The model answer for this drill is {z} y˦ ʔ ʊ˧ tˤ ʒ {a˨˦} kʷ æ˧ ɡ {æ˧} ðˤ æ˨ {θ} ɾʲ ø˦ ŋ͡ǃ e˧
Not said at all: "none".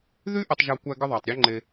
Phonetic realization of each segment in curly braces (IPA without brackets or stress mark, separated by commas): ð, a˧, ə˧, tˤ